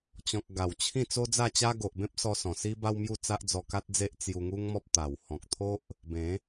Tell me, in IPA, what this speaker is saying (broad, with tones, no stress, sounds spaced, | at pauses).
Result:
t͡ɕ ɔ̃˨ k̚ ɡ a˨˩ w t͡ɕʰ ĩ˥˧ t͡s o˦ d͡z a˥˧ t͡ɕ a˦ ɡ o˨ ʔ b ẽ˦ p̚ s ɔ˧ s ɔ̃˨˩ s i˦ b a˦ w m j u˥˧ t͡s a˦ ʔ d͡z ɔ˧ k a˦ t̚ d͡z e˦ ʔ t͡s j u˧ ŋ u˦ ŋ m ɔ˦ p̚ t̪ a˨˩ w h ɔ̃˨ k̚ t̪ʰ o˦ ʔ | b ẽ˨˦